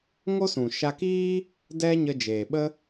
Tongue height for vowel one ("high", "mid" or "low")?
mid